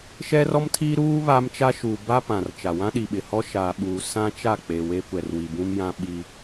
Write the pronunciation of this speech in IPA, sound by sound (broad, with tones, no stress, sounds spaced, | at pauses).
ʃ ɛ˦ r ɔ˦ m tʰ iː˦ ɾ uː˦ β a˦ m t͡ʃ a˦ ʃ uː˨ b a˦ p ã˨ r t͡ʃ a˨ w ã˦ ɗ i˨ ɓ ɪ˨ h ɔ˦ ʃ aː˨ ɓ uː˨ s ã˦ t͡ʃ a˦˨ k͡p e˨ w eː˦ kʷ ɛ˨ r w i˨ b ũ˦ m j ã˦ ɓ i˦